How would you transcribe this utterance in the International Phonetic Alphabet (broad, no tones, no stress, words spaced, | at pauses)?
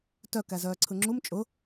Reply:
tœ kæzœːǀʰɯŋ͡ǁum t͡ʃʼʊ